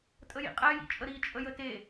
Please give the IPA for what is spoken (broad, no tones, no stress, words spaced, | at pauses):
tʼəjḭqʼɛjḭ t͡ʃʼəɾit͡ʃʼə jəte